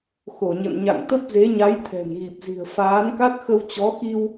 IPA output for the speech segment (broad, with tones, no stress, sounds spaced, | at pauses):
x o˧˩ ɲ ə̰˧˨ n ɲ a̰˧˨ ŋ t̪ ə˦˥ p̚ z e˨˦ ɲ a˨˦ j t̪ʰ ɛ̤˨˩ n ɣ i˨˩ p̚ z i̤˨˩ ə̯ f aː˨˦ n k a˦˥ t̚ x ə˧ w t͡ɕ ɔ˨˦ x i˧ w